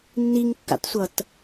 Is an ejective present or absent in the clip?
absent